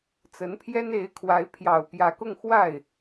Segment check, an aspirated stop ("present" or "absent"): present